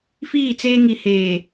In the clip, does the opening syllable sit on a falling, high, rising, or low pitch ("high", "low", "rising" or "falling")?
falling